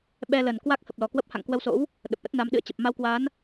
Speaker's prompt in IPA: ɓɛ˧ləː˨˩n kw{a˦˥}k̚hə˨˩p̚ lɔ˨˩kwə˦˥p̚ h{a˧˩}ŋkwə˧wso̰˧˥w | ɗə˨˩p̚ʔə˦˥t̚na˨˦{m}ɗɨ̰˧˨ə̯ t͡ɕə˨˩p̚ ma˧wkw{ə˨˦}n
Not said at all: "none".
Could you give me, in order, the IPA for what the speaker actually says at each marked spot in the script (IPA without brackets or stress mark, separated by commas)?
a˦˥, a̰˧˨, m, a˨˦